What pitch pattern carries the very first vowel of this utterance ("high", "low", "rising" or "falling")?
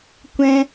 high